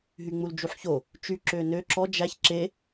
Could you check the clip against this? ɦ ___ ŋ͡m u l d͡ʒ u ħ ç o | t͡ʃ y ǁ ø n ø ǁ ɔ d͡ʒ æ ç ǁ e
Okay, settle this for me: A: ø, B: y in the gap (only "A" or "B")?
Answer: B